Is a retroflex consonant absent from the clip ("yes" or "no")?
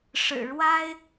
no